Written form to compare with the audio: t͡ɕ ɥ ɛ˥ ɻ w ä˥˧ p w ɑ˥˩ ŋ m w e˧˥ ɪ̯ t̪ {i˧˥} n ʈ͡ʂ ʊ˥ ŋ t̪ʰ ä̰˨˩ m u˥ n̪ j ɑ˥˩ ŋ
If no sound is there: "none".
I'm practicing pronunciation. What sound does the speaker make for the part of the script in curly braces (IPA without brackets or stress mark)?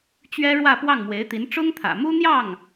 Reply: i˧˥